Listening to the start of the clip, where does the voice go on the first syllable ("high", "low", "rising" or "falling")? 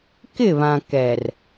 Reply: falling